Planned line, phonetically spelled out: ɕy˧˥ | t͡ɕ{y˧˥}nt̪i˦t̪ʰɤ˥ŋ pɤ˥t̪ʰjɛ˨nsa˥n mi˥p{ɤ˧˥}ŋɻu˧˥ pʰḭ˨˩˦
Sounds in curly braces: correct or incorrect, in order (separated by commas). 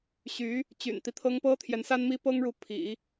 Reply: incorrect, incorrect